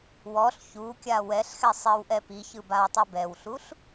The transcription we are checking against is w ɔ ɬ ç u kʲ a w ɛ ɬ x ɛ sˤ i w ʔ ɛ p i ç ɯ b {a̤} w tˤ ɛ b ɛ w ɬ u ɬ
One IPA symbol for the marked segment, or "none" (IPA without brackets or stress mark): a